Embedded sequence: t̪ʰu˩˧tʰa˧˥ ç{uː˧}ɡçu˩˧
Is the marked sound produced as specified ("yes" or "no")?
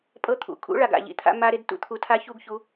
no